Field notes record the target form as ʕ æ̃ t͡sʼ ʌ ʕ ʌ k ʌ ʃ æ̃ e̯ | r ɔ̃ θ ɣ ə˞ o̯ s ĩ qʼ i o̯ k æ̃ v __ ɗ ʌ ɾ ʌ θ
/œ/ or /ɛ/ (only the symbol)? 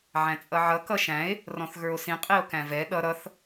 ɛ